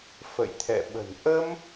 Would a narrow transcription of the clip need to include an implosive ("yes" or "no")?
yes